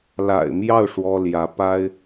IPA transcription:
la̰˨˩ɪ̯mjɑ˥˩ʊ̯ ʂwɔ˥ljä˧˥ pa˥ɪ̯

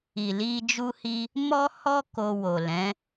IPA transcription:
i˨li˧ d͡ʒu˦hi˦ | mɔ˦hɔ˦ ko˧wo˨lɛ̃˨˦

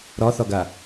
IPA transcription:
ɾɒθɒɡa

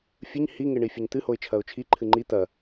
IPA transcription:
fʲɨɲ hiŋeɳi fʲɵɲt̪ɨhoɪ̯ t͡ʃʰɐʊ̯t͡ʃʰi ǃʰɨŋ͡ǃi t̪ɐ

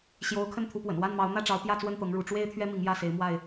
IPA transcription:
ɕjo˨˦ʊ̯ kʰə˥˨nt̪ʰu˨˦pwə̰˨˩n wa˥˨nmɑ˨˦ʊ̯ n̪ä˥˨ ʈ͡ʂɑ˨˦ʊ̯pjä˥˨t͡swə˥˨n t̪ɤ˨˦ŋɻu˨˦ ʈ͡ʂwe˦ɪ̯t̪ʰɥɛ˦ mi˨˦ŋjä˥˨se˨˦ɪ̯ mwa˥˨ɪ̯

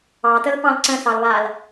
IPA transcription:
ɑtəlpɑ̃l ǀə̃sɑlβaːl

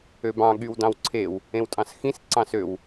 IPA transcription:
øbɑ̃ ɠywdɑ̃wǀʰew | ẽwtʼɑ̃sxĩs ǀɑ̃søw

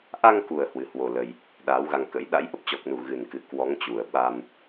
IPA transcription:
ʔa˧ŋku˨˩ə̯ hwɨ˨˦hwo˧lə˧j | ɗaː˨˦wɣa˧ŋkə̰˧˥j ɗa̰˧˥jʔə˦˥p̚t͡ɕɔ˨˩k̚nu˧˩ ɣɨ˨˩nkɨ˨˩ kwɔ˨˦ŋ t͡ɕu˨˩ə̯ɓa˧m

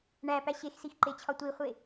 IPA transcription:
ɳæpæ ɕexsixǃet͡ɕʰɒ tʷiχʷe

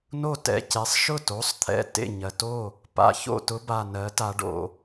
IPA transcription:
no˥˩tɛ̰˩˧˩ce˩˥sˤ ʃʊ˥˩to˩˥sˤt̪ʰɛ̰˩˧˩ tḛ˥˩ ɲɜ˩to˥˩ | pa̰˩˧˩ço̰˥˩tʊ˧˥ ba˩˧˩nɜ˩˥ta˩˧ ɖo̰˩

